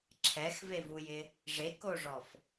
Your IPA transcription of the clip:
ǁʰɛxvevujɪ | ʐekoʐɔf

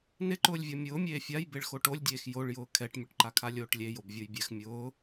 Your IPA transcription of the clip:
nɪǃʊːlʲvʲɔ mʲʊːmʲeː fʲaj beɭxoʈolʲdʲeːx joɭjʊː kʰɛʈmʲʊʈǃakʰalʲ oːʈlʲe jobvʲojbʲɛx mʲʊː

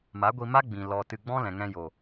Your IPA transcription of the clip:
ma˨˦ɡʷi˧ma˦ ɡ͡bĩ˧ lɔ˨ tɨ˧ ɡ͡bɔ̃˦lɛ̃˨ŋɛ̃˧jo˨

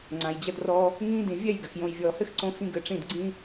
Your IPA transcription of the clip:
ŋ͡ǀã˨jd͡ʑɐ˦drɔ˦ | ŋĩː˧dĩ˨ vʲɛ˦˨jɡɘ˨x jõ˨jvʲɔː˨hɘ˦xǀõ˧ xĩ˦ɡɘ˧ʈ͡ʂĩ˦˨d ɡ͡ǀĩ˦

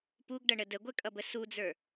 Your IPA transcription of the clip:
puɡɖʌɳə dəɡʷɛkʼʌbə sud͡zə˞

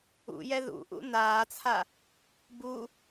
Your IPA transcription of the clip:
ṵjɛ ðṵʔṵ naːt͡sʰa | bu

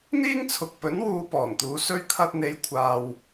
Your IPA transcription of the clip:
n̪iː˥ŋt͡sʰʊ˨k̚ pɵ˨˥nwuː˧ pɔː˨˩nt̪uː˨˧ sɵ˥ɥ kʰɐ˧t̚n̪e˨˧jkʷʰaː˨w

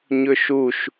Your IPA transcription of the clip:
ɲɵʃuʃ

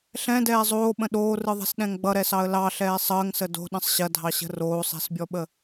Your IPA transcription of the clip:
ɬɛ̃dɛː zˤoːɓə̃ ɗoːrɯðˤɛ̤sɗɛ̃ŋ ɡ͡bʌɾɛsɑə̯ lɑɬɛː sˤəːŋsə do̤ɗə̃sˤ ɕɐdʱɑɕə̤ roːsˤɛ̤sbʲɔɓə

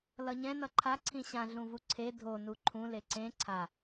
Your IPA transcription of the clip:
lʌɲɛ̃ nʌǃʰa ǀʰĩɕã ɮũvuǀʰe dʱo nuǃʰũ leǀẽ ǀʰa

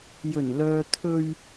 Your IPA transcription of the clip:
jɵ˨˩nlœː˨t̪ʰɵ˧ɥ

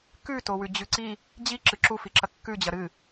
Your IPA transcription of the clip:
kʉ towʉd͡ʑʉǀi | d͡ʑi ǁɨǁu fiǁɐkːʉ d͡ʑɐɾɨ

